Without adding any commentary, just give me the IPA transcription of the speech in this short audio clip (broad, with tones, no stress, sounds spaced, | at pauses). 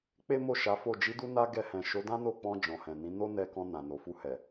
k͡p e˦ m o˦˨ ʃ a˨˦ f o˦˨ d͡ʒ i˨˦ d u˧ n a˧ ɡ ɛ˧ h ɛ̃˨ ʃ o˨˦ d ã˦ n o˦˨ k͡p ɔ̃˧ d͡ʒ ɔ̃˨ h ɛ̃˨ n ĩ˨˦ n o˦ n ɛ˧ k ɔ̃˧ n ã˨ n o˨ f u˧ h ɛ˨